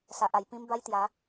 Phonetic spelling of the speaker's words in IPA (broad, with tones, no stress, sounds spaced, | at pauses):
s a˨ ʔ a˨˩ j p ĩ˦ m b a˦ j t̪ j a˨˦